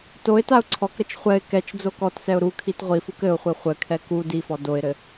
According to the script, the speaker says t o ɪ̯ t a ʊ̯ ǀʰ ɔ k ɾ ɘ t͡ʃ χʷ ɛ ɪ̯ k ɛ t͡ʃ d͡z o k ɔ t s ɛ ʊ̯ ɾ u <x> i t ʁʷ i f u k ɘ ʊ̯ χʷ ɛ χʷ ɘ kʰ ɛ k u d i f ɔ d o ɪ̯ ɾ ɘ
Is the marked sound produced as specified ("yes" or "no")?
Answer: no